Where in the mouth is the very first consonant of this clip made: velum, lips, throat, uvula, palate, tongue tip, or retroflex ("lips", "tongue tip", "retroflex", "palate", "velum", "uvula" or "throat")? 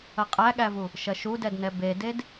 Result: uvula